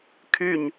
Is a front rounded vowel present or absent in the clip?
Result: present